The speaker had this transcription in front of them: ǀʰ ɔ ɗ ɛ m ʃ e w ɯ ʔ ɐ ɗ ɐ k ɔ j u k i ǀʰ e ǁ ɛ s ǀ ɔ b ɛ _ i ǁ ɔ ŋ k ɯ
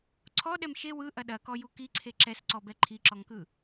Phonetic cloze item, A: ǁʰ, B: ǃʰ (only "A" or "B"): B